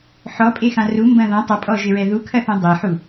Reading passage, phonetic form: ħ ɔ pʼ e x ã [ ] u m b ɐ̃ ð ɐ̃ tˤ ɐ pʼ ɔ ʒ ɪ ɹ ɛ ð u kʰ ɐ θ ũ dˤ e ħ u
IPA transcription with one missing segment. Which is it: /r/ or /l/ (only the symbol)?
r